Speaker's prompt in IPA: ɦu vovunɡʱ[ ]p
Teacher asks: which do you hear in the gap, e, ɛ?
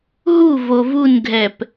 ɛ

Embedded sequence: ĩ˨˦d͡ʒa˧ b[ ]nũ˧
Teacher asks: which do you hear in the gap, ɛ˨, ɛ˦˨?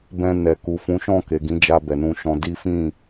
ɛ˨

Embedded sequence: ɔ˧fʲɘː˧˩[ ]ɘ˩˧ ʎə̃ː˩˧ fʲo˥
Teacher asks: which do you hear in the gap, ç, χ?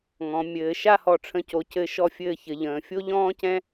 ç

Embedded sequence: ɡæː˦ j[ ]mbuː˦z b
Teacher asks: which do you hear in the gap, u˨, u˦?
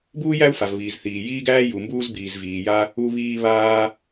u˨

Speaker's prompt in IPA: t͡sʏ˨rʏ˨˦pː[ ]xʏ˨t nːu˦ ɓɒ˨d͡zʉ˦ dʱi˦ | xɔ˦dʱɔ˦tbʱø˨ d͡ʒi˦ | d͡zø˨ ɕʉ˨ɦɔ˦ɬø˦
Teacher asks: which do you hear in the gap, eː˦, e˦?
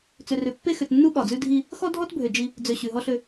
e˦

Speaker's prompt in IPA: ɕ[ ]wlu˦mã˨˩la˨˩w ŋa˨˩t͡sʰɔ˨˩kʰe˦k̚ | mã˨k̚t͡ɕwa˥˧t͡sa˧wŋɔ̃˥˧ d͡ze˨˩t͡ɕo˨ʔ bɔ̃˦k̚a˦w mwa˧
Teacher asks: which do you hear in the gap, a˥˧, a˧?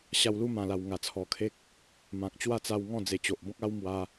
a˧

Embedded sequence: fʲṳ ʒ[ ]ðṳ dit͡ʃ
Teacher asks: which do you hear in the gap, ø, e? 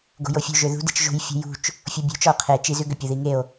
ø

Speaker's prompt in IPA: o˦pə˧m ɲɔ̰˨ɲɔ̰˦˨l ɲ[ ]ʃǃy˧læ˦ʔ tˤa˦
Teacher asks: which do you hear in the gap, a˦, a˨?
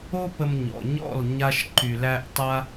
a˦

